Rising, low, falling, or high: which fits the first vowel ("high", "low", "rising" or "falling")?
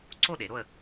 falling